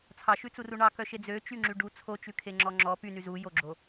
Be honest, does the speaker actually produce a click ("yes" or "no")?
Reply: yes